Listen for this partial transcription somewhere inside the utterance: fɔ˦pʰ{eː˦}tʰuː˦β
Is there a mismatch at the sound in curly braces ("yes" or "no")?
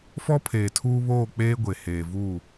yes